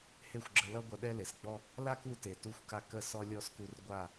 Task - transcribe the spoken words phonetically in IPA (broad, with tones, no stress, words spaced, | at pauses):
he˦˨xʷɡ͡ǁə˧lʌ˦ ɡʷʌ˧ɗɛ˦le˨sɡ͡bɔ˦ | la˦ku˧te˨ tu˧xʷka˧ kə˦˨sɔ˦ lʲɔ˦sku˧r ɡʷa˦˨